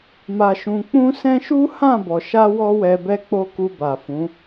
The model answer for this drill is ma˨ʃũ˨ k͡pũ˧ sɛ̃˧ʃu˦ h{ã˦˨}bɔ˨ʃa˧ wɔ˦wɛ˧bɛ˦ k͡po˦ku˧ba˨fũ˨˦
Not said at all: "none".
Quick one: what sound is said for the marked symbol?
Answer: ã˦˨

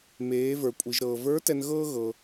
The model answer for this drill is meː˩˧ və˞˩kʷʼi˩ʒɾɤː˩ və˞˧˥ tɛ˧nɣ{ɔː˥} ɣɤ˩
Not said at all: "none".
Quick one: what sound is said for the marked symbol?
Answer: ɤː˥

